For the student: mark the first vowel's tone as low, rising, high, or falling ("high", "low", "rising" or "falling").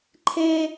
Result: high